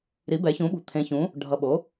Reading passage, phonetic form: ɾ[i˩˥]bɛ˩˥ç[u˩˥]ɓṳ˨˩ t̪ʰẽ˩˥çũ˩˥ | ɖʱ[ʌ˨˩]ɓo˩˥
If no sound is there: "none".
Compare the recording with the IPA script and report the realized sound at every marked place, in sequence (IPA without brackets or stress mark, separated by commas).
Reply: i˩˥, ũ˩˥, ʌ˨˩